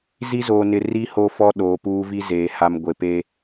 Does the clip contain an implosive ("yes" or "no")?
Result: yes